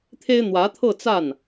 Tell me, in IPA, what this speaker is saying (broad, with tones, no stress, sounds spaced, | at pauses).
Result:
t̪ʰ e˥ ɪ̯ n̪ w ä˧˥ t̪ʰ ɤ˥˧ t͡s a˥˩ n